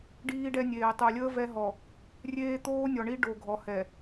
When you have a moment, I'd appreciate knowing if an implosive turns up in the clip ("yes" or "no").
no